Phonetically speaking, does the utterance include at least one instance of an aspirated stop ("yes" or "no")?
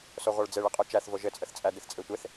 no